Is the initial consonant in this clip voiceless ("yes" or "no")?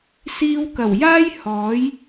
yes